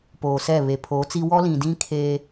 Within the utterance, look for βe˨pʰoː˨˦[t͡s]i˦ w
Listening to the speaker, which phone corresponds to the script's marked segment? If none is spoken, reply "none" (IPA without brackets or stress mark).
t͡s